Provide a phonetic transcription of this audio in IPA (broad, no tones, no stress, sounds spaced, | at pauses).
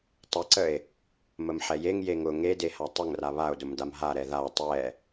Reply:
tˤ ə ǀ ə e̯ | m ə m ħ ɛ j e ŋ j e ŋ ʊ ŋ e d e h a tˤ ʊ ŋ r a β a o̯ d ʊ m d a m ɦ a ɾ ɛ ð a tˤ ɛ